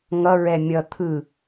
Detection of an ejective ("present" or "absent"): absent